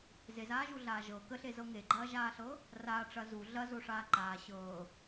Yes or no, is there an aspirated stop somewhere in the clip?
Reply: no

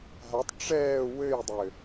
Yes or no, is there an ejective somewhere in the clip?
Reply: no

